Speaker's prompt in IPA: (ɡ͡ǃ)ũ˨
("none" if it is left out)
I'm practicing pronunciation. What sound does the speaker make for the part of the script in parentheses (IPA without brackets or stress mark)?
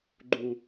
ɡ͡ǃ